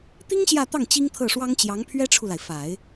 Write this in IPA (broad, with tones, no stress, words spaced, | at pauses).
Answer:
t̪i˥ŋ ɕjä˥˧t̪ɑ˥˩ŋ t͡ɕi˥ŋt̪ʰɤ˥˩ʂwɑ˥ŋt͡ɕjɑ˧˥ŋ pʰɥɛ˥ʈ͡ʂʰu˨la˩ɪ̯fa˨˩˦ɪ̯